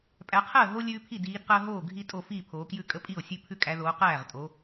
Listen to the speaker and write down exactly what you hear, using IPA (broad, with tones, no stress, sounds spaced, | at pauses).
pʼ æ˨˦ qʰ əː˥˩ ɦ o˦ lʲ ʉː˦ pʰ i˥˩ d iː˨˦ d q əː˦ ɦ oː˥˩ ɡʱ i˦ tʼ o˥˩ f iː˥˩ pʰ oː˨˦ k j ʉ˥˩ kʼ ə˦ pʼ i˥˩ o̯ sʲ ʉ˦ pʰ ʉ˦ kʼ æ˨˦ ð oː˨˦ q æː˥˩ ʁ tʼ o˨˦